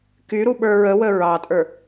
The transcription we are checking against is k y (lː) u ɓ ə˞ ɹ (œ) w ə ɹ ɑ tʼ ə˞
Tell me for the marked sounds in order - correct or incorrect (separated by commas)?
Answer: incorrect, incorrect